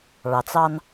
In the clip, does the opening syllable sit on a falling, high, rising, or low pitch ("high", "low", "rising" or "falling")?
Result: low